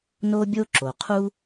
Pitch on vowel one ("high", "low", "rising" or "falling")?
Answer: high